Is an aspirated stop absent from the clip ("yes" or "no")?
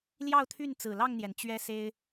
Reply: no